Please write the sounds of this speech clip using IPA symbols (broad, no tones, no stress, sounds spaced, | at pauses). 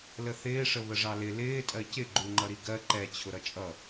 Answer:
l ə θ ɪː ʂ ə β ə ʐ ɑ l ɪ l ɪː tʼ ɜ c ɪ ɡ͡ǃ u ŋ͡ǃ ʌ ɾ i ɡ ɜ ǃ ɛ t͡ɕʰ ʊ ɾ ʌ t͡ʃʼ ʌ